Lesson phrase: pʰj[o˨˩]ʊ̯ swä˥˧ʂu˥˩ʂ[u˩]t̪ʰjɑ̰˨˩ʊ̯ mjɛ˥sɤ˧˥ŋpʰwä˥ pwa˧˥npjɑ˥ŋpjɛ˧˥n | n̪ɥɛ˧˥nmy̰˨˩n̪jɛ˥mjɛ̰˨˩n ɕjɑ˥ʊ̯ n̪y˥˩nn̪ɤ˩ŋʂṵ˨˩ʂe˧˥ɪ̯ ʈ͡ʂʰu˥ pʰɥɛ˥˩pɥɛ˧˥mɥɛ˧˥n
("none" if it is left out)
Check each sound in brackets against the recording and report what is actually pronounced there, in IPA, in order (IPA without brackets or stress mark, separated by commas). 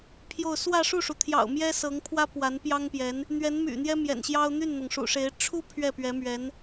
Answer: o˥˧, u˩